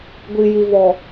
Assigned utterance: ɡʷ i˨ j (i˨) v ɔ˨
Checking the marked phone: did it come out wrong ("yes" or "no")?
no